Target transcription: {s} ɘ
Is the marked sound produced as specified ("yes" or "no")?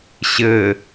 no